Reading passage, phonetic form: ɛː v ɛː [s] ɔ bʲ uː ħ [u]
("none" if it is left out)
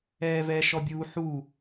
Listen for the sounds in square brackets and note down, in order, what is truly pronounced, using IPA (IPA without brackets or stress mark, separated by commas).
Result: ʃ, u